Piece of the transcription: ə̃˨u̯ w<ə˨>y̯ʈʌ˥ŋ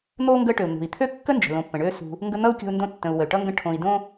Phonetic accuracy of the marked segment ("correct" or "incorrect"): incorrect